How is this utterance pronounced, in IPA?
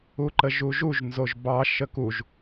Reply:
u ǃ ə ʒ u ʒ u ʒ n z o ʒ b ɑ ʃ ə k u ʒ

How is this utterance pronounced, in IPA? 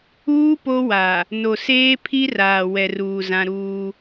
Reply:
uː˦ p o˦ w a˨ | n o˨ s eː˦ pʰ i˦ r aː˨ w ɛ˨ r uː˨ z ã˦ ɾ uː˦

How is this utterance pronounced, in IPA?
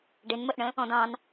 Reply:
ɖ ɪ n m ə ʔ ɳ ə̃ | ɔ̃ d ɑ̃ n

